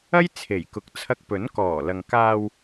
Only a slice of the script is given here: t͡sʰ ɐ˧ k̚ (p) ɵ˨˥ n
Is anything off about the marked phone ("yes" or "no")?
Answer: no